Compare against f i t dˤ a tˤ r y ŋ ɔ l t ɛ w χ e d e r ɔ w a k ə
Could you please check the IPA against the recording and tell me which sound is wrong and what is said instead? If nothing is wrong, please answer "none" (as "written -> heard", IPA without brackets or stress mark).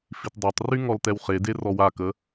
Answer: none